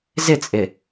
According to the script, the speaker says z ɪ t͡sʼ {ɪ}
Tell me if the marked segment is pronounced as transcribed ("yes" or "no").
yes